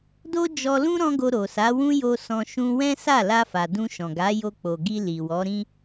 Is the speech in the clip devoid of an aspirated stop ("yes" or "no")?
yes